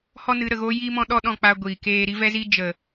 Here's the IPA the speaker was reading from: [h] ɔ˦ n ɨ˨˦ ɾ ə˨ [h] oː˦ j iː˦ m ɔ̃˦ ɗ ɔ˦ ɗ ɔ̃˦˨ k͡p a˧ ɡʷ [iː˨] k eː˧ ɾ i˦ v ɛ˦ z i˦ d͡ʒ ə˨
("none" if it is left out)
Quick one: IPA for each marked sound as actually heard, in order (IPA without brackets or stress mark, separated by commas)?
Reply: h, ɣ, iː˨